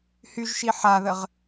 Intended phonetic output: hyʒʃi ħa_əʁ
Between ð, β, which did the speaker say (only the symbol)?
ð